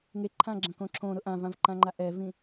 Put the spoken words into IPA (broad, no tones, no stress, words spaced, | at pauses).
ŋeǃʰãɡ͡ǁɐ̃kõ ǁʰõɾʊ ʔãvãvǃãŋ͡ǃa ʔɛvĩ